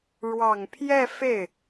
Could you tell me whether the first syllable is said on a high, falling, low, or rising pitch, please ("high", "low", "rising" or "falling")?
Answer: low